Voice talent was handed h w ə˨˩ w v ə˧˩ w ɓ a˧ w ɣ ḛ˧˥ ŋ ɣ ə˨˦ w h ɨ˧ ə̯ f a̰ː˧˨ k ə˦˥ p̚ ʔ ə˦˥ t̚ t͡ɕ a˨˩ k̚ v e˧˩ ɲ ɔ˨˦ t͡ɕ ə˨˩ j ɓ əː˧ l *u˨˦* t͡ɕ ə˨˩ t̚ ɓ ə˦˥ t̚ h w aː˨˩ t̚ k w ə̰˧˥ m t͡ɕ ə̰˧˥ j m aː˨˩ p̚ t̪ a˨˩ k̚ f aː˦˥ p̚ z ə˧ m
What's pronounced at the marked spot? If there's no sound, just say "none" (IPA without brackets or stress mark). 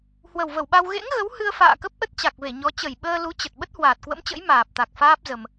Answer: u˨˦